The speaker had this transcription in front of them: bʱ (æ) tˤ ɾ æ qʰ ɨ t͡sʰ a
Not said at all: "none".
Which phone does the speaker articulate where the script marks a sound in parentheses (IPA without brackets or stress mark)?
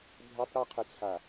ɛ